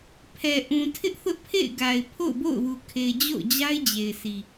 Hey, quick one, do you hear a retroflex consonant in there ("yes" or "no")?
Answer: no